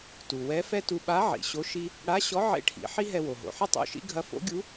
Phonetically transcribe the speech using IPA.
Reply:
t u˩ w ɛ˧˥ f ɛ˥ t u˧ ɓ a˧˥ ʕ ḭ˩ ɕ o˧˥ ʃ i˧ | ɽ a˧˥ ɕ ɔ˧˥ ʕ ḛ˧˥ ʈʰ ḭ˩˧ ħ i˥ ɦ ɛ˧ w o˩ ɦ o̰˩ ħ ɘ˥ tˤ o̰˧˥ ʃ ḭ˧˥ ɡʱ ɐ˧˥ f o̰˧˥ ɡʲ u˧˥

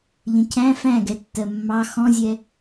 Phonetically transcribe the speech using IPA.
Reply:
ʎ ə̃ cʰ æ̃ f æ̃ ɡ ɛ tː ɜ mː ɑ x ɔ̃ zʲ ɛ

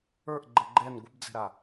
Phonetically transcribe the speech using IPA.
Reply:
ə˞ ʔ ɡ͡ǃ ɛ ɡ͡ǃ ɛ n ɡʷ ə b d͡z ɛ̤ ɾ a

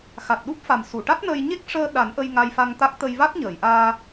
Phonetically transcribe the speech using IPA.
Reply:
x a˨˩ t̚ ɗ u˦˥ p̚ f a˨˩ m s u˨˩˨ ʈ a˦˥ t̚ n əː˧ j ɲ e˦˥ k̚ ʂ əː˧ ɗ a˨˩˦ n ʔ ə˧ j ŋ a˧ j f a˧ ŋ t̪ a˦˥ k̚ t̪ ə˧ j v a˦˥ t̚ ɲ əː˨˩˨ j ʔ aː˧

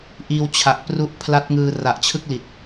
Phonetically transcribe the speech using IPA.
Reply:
ʔ iː˧ w t͡ɕʰ a˨˩ ʔ p r u˦˥ ʔ pʰ l a˦˥ t̚ ŋ ɯː˧ r a˨˩ ʔ t͡ɕʰ ɯ˥˩ k̚ l i˨˩ t̚

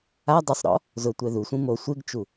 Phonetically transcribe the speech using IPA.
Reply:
a dˤ ʊ sˤ ɾ ɔ̰ | z ʊ tʷ ɛ ð u sʷ ĩ m o sʷ e ɡ t͡ʃ u

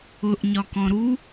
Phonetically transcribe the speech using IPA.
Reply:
ʊ ʔ ɲ ɒ k ɔ̃ ɾ u

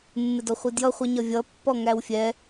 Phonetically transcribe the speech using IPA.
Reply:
mː ɪ d ɔ χʷ i d j ʌ χʷ ʌ ɲ ʌ vʲ ʌ pː ɔ ŋ æ w fʲ ɛ

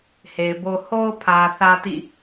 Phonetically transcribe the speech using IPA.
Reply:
h e˨ ɪ̯ b o˦ h o˦ ʊ̯ pʰ ä˨ θ ä˦ t ḭ˦˨

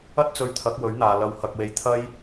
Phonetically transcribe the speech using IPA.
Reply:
ɐ˥ t̚ t͡s ɵ˧ ɥ t̪ʰ ɐ˨˥ k̚ w ɵ˨˥ ɥ n̪ aː˨ l ɐ˧ w h ɐ˧ k̚ w e˧ j t̪ʰ ɐ˥ j

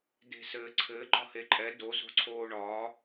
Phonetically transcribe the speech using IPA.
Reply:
d e̤ s ɘː ǀʰ ɘ ɡ͡ǃ ɒ h e ǃʼ ɛ d o z o̤ ǀʰ oː ɳ ɒː

